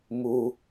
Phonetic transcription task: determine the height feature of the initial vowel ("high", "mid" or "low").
high